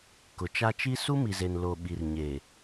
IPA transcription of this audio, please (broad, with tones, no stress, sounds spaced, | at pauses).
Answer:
k ʊ˨ t͡ʃ a˦ t͡ʃ i˦ s u˦ m i˨ z e˨ n l o˨ ɓ i˨ r ɲ e˨